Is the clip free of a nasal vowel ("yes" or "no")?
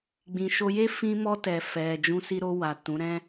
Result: no